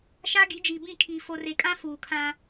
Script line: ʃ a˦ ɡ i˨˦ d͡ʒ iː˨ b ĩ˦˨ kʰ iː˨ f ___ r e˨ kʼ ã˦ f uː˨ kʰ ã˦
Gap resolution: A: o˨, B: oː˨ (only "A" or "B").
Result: A